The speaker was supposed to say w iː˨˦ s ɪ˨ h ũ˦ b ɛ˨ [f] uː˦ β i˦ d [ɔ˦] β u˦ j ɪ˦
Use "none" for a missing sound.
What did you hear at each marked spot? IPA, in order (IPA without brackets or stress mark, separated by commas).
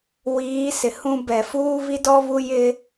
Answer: f, ɔ˦